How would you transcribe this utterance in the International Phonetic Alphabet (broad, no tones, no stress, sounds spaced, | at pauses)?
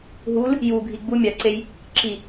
ɦ u l | j u ɡʱ i ɡ͡b u mʲ a ǀ e j | ǁ i